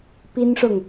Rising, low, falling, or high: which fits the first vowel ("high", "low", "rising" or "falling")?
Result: high